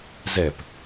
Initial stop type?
plain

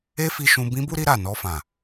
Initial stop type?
plain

